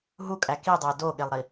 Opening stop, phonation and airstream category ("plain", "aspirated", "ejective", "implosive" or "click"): ejective